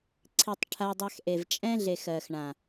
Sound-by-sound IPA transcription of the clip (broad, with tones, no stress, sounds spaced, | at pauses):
ǀʰ i˨ tˤ ʈʰ a˧ dˤ a˧ x ʔ e˨ v t͡ʃʼ ɛ̃˦ ɮ e˨ x ɜ˨ x ɳ ã˨